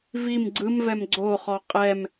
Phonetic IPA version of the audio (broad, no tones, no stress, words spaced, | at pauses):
vim ɡ͡ǀɯmvɛm ɡ͡ǀoχɔ qʼɛm